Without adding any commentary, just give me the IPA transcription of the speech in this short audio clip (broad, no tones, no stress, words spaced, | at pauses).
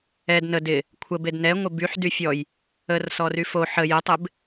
ɛd nə dɪ | kʷʰə bednɛŋʷɪ byħ dyfʲɔj | ərsɔry fo ħə jətˤɪb